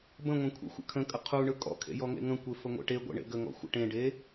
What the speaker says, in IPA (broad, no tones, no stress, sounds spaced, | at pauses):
b ə̃ ŋʷ ẽ kʷʰ ḛ xʷ ə̰ kʰ ə̃ kʼ ə qʰ u ɳ ɯ kʼ ɔ̰ kʰ ḛ j ɔ ŋ ḛ ŋ ə̃ kʷ e f ə ŋʷ ḛ ʈ e ɡʷ ḛ ɳ ḛ ɡ ə ŋ ɔ̰ xʷ ə̰ ʈ ẽ ɖ e